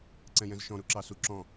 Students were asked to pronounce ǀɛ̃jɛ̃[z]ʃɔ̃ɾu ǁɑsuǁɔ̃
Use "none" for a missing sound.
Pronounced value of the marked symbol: z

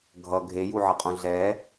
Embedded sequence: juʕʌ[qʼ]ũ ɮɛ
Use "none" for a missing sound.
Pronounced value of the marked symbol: qʼ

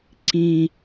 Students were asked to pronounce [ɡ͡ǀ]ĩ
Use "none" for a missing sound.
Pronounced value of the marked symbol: ǀ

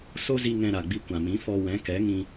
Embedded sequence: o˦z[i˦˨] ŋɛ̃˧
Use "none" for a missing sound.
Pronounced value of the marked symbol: i˧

